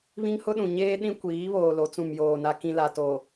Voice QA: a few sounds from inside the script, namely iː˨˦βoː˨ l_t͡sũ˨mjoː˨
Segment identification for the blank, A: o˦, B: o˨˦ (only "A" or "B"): B